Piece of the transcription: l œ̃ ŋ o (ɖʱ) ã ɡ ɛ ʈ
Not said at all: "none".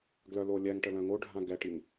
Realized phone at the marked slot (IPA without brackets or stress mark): ɖʱ